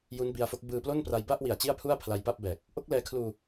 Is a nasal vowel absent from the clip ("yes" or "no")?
yes